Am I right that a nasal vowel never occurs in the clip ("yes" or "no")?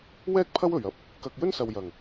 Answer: yes